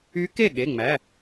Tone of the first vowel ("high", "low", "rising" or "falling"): rising